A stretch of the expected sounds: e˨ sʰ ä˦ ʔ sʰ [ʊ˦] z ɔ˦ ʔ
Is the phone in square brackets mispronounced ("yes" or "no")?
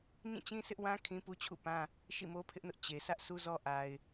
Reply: yes